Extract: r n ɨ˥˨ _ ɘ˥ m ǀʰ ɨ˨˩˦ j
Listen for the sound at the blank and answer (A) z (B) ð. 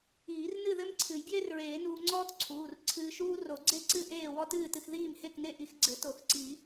B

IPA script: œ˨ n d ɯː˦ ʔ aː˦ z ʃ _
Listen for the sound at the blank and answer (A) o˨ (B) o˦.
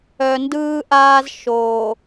A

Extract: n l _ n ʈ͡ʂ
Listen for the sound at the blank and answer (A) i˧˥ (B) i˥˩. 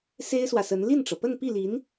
B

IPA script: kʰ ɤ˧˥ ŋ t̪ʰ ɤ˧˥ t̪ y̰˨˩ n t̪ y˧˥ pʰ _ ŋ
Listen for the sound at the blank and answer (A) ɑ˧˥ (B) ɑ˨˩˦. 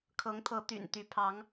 A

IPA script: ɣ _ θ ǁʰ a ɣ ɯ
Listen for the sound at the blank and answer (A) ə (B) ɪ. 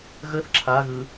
A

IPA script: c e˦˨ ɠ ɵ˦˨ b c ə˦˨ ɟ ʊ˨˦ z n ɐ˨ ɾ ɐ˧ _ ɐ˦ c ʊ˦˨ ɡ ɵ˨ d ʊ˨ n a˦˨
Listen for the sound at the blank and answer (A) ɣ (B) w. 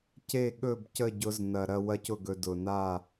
B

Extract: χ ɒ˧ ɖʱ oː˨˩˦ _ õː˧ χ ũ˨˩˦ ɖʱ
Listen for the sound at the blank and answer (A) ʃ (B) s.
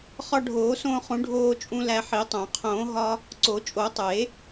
B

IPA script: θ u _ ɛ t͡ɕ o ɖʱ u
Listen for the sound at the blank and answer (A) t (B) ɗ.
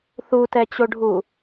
A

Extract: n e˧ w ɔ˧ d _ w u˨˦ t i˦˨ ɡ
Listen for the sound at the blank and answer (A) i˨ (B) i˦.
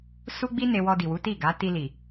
A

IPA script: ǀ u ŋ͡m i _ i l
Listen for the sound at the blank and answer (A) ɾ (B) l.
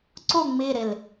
A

